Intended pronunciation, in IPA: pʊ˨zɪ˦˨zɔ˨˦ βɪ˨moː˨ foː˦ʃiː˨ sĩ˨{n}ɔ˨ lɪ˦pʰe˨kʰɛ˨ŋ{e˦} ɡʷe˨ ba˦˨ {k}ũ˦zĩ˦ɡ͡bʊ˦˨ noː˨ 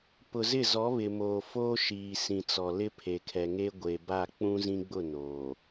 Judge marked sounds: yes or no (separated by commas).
no, yes, no